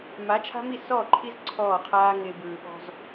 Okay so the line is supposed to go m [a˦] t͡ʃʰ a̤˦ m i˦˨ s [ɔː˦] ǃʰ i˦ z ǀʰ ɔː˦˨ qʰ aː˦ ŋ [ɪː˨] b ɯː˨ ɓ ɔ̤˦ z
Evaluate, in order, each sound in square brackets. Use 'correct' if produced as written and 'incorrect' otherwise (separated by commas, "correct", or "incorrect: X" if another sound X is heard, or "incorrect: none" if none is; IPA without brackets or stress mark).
incorrect: a˨˦, incorrect: ɔː˦˨, correct